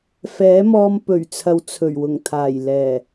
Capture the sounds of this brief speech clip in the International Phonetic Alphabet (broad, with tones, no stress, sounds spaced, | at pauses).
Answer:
f ɛː˨˥ m ɔː˧ m p ɵ˨˩ ɥ t͡sʰ ɐ˨ w t͡sʰ ɵ˨˩ ɥ w ʊ˨˩ ŋ t̪ʰ aː˨˩ j l ɛː˨˩